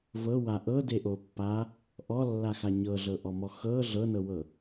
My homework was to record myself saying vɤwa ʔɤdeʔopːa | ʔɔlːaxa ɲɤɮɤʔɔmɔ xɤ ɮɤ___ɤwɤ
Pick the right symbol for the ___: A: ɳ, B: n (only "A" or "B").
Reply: B